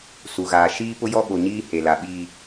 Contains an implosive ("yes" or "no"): yes